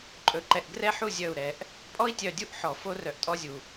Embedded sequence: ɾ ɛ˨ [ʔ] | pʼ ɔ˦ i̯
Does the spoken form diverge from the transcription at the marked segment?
no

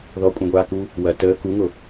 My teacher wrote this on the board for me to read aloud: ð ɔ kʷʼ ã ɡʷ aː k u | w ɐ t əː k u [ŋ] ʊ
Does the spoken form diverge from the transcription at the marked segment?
no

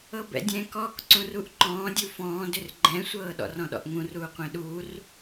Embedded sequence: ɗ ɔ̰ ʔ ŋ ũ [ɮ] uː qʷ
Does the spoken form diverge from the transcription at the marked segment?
yes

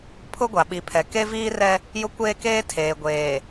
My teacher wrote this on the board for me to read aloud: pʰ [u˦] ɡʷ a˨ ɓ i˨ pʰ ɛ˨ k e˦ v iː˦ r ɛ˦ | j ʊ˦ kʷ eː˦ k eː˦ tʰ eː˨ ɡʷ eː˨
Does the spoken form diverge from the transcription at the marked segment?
yes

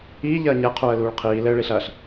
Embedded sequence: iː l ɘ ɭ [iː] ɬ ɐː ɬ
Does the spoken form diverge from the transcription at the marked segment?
yes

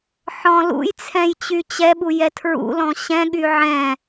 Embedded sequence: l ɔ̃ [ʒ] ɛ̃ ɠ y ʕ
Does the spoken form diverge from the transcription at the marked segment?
yes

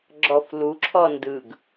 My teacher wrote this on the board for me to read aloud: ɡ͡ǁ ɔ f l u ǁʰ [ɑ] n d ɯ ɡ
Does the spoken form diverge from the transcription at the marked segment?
yes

